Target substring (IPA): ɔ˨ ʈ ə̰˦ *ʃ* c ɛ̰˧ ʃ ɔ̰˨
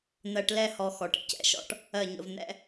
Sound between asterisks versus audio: incorrect: none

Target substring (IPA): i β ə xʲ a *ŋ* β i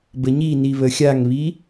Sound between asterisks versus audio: correct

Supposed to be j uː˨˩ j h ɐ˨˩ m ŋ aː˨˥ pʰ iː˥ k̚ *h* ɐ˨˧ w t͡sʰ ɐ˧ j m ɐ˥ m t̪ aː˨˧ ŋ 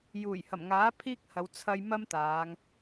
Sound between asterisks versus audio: correct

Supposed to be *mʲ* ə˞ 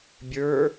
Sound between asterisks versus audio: incorrect: bʲ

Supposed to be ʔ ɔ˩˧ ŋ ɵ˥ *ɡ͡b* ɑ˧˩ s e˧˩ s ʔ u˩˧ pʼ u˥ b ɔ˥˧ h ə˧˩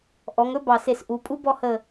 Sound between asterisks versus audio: incorrect: b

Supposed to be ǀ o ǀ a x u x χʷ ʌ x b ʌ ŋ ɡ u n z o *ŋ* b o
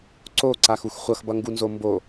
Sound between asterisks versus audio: incorrect: m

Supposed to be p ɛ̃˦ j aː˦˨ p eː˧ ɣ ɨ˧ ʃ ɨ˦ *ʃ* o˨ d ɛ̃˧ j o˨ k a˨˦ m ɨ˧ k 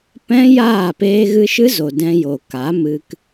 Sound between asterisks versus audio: incorrect: z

